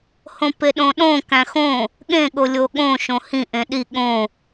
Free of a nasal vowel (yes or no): no